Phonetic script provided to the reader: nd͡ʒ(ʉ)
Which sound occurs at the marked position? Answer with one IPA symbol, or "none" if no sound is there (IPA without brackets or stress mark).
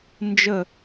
ə